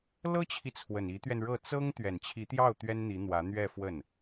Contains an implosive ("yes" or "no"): no